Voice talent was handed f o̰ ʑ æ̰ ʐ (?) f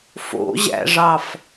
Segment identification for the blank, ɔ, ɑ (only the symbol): ɑ